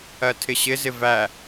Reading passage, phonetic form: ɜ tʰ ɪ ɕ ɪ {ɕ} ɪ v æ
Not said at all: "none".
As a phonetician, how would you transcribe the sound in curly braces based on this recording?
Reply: z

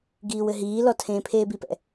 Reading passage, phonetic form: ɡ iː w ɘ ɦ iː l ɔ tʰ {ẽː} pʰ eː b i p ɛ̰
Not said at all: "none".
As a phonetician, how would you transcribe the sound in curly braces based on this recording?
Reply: ẽː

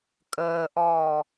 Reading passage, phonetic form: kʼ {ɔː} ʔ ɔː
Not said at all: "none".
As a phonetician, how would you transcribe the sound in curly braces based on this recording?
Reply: əː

